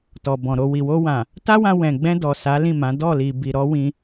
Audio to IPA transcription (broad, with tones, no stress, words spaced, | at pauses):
tɔ˨bɔ̃˨ɾo˧ wi˨wo˧wã˨ | ta˦wã˧wɛ̃˨ɡ͡bɛ̃˧ dɔ˨sa˨˦lĩ˦˨ mã˨˦ dɔ˦˨li˨ bi˨ɾɔ˨˦ wĩ˧